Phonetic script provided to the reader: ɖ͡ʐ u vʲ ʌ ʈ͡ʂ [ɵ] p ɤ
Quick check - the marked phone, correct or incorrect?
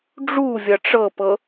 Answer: incorrect